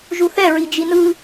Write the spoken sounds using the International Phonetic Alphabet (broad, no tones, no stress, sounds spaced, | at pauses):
ʒ u θ ɛ ɹ i d͡ʒ i n ɯ